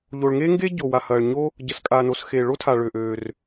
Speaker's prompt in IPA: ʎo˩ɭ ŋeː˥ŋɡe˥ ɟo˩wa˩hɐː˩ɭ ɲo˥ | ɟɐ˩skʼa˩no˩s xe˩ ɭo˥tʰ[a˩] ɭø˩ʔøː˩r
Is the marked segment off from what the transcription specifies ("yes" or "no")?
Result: no